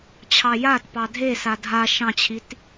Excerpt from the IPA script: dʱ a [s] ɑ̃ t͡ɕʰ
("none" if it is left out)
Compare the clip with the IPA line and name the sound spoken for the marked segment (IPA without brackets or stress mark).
ʃ